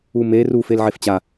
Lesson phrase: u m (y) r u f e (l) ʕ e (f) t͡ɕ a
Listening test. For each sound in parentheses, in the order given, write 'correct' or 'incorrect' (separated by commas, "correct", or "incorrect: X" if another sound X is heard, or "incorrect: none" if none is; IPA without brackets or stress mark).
incorrect: e, correct, correct